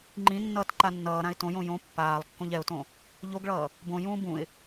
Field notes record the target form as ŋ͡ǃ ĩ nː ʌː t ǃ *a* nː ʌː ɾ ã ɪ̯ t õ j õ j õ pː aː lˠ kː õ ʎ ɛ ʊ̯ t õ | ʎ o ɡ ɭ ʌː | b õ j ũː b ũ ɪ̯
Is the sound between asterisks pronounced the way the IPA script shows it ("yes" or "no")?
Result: yes